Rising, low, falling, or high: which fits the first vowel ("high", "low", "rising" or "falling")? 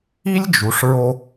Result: high